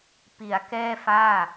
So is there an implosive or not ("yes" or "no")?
no